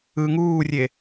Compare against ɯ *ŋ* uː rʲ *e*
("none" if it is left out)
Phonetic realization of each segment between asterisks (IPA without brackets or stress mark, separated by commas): ŋ, e